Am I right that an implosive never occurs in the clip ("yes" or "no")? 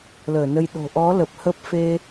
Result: no